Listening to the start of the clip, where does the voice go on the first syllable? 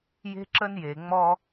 high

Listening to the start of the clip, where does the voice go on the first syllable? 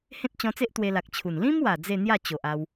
high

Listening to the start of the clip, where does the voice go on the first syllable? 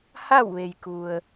falling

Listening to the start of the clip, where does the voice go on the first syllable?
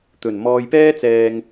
low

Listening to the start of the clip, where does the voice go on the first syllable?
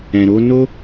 low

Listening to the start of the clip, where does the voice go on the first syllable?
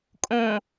low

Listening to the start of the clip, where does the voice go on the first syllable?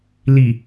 low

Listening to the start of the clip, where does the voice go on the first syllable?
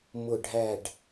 falling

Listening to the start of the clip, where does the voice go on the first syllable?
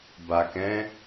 low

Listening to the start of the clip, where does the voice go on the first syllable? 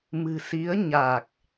low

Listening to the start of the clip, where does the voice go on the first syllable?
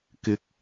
rising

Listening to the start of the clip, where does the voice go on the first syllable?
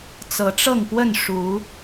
rising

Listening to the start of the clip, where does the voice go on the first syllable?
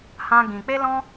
high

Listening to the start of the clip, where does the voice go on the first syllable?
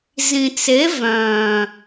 low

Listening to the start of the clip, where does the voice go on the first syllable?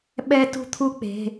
high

